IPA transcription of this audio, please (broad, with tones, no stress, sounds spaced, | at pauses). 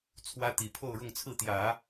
t͡sʰ w ä˥ t̪ i˨˩ pʰ o˥˧ ʊ̯ ɻ ʊ˥˧ ŋ t͡sʰ ɹ̩˥˩ t̪ j ä˨˩˦